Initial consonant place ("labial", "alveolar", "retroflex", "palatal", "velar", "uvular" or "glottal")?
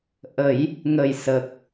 glottal